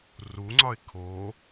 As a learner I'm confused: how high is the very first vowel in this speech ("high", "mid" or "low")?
high